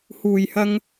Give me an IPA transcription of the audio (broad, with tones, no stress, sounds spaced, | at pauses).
h uː˨ j h ɐ˧ ŋ